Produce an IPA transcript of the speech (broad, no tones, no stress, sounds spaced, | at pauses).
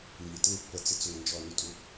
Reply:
m i t ə ŋ pː ə t͡s ɪ t͡s o ŋ n d͡ʒ ɔ n u tʼ u